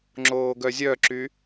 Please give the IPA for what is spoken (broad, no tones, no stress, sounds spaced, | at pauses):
ŋ͡ǁ oː ɡ œ zʲ œ ǁ y